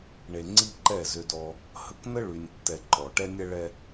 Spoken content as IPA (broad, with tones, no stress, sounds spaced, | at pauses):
ɳ e˨ ŋ͡ǀ i˦ ǃ ɛ˦˨ z ʏ˦ d ɔ˦ | h ə˦ k n ə˦ ɭ y˨ nʲ tː ɛ˨ ǃ ɔ˨ ʈ ɛ˦ nʲ ɛ˦ ɭ ɛ˦